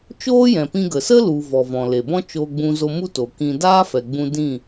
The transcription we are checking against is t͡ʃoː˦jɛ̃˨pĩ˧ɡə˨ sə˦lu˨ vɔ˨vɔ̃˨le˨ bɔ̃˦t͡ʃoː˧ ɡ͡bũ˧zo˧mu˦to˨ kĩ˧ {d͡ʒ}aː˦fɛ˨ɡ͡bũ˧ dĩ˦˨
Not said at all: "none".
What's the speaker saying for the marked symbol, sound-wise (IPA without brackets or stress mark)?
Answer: d